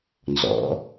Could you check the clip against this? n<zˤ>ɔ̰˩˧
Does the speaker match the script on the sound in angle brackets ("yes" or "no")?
no